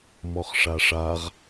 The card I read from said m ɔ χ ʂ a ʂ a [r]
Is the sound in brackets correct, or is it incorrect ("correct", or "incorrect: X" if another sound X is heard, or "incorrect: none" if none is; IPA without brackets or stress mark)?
incorrect: ʁ